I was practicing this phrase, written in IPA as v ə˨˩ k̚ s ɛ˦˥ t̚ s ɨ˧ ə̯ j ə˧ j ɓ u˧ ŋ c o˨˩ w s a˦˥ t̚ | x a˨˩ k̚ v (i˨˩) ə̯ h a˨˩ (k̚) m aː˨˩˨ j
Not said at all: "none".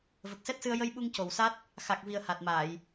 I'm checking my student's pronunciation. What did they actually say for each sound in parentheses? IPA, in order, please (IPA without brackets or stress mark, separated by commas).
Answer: i˨˩, t̚